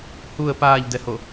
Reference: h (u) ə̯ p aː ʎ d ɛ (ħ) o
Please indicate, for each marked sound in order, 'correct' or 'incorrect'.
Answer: correct, incorrect

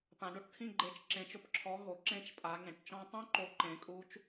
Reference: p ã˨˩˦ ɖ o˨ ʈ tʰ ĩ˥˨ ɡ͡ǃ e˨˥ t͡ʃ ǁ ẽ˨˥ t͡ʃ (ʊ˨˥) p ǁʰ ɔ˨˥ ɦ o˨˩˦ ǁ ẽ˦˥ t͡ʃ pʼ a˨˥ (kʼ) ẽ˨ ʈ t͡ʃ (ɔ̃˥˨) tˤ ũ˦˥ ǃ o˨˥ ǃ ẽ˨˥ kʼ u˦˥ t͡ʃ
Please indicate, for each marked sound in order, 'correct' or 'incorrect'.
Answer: correct, incorrect, incorrect

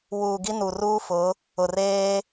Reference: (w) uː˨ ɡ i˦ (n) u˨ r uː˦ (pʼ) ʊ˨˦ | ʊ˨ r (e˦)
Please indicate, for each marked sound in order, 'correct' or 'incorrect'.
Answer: correct, correct, incorrect, incorrect

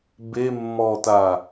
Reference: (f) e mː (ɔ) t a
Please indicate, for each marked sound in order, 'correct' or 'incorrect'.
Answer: incorrect, incorrect

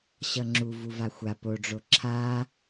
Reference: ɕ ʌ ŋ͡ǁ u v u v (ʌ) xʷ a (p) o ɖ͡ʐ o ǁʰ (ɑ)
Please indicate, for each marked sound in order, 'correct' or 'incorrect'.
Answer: incorrect, correct, incorrect

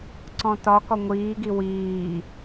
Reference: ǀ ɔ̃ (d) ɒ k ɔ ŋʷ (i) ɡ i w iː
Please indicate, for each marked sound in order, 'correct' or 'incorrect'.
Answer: incorrect, incorrect

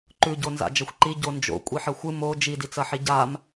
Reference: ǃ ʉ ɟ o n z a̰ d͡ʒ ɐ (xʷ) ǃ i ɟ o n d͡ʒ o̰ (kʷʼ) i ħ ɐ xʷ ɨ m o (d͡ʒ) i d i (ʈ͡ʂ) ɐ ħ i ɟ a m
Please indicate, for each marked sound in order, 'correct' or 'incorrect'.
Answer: correct, correct, correct, incorrect

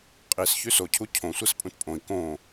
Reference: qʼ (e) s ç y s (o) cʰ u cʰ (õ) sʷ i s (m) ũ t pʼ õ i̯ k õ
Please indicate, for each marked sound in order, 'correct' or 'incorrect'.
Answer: incorrect, correct, correct, incorrect

